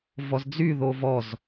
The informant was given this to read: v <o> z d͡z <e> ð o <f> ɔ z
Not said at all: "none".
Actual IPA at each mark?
ɔ, y, v

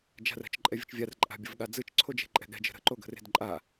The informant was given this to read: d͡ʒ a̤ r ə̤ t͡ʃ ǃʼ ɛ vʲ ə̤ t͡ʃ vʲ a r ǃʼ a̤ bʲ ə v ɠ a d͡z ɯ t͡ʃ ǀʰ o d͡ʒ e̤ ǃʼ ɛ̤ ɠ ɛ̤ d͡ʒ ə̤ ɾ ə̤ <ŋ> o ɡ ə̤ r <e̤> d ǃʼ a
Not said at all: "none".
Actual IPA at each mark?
ǃ, e̤

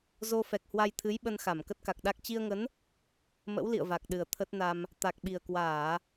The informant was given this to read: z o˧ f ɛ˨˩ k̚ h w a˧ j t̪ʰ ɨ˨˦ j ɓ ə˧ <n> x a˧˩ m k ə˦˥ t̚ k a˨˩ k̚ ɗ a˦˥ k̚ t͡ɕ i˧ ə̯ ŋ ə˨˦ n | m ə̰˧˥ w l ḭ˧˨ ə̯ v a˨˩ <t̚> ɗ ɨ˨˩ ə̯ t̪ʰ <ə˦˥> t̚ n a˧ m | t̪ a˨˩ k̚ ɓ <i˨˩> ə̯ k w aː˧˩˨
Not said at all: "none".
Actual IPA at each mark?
n, k̚, ə˦˥, i˨˩

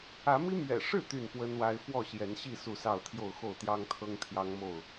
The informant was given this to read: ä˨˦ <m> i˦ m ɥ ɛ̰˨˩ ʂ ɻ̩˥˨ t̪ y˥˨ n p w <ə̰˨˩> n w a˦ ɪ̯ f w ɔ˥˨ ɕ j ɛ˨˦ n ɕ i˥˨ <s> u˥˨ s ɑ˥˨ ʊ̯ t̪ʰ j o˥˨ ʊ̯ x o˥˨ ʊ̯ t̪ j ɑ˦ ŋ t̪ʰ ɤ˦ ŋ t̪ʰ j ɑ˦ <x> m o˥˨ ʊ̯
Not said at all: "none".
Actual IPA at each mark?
m, ə˦, s, ŋ

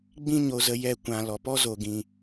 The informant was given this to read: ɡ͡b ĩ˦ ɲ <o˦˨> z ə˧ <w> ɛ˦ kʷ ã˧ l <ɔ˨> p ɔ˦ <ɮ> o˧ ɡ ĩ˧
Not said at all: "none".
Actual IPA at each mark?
o˧, j, ɔ˨, z

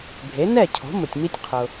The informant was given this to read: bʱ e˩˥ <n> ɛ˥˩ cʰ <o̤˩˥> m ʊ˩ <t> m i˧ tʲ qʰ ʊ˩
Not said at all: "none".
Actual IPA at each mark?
n, o̤˩˥, tʲ

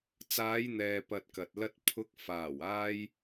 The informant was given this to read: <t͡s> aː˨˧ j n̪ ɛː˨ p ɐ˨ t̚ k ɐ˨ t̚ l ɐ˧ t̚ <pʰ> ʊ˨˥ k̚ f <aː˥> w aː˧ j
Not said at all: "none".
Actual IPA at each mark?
t͡s, pʰ, aː˨˩

